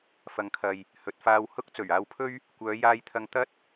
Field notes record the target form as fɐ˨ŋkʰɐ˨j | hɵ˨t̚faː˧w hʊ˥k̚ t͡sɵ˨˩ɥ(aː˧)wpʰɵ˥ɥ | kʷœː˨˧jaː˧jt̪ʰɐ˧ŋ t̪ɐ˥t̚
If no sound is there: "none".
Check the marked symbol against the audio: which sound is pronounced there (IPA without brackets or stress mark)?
aː˧